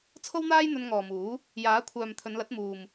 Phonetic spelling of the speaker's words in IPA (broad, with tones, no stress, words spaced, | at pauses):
t͡sʰo˥wn̪aː˥j n̪ɵ˧nŋɔː˨muː˨˥ | jaː˨˥kʷʰœː˨m t̪ʰɵ˨˧nlɐ˨˥t̚muː˨m